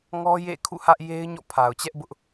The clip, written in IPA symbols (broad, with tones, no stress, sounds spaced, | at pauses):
ŋ ɔ˦ j ḛ˦˨ kʰ ṵ˦˨ h ä˦ ʔ j e˦ ɪ̯ ɲ ɔ̰˦˨ pʰ a˨ ʊ̯ t͡ɕ ɛ˦ ʔ b ʊ˦ ʔ